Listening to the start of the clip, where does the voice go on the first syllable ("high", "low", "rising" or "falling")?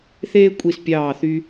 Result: high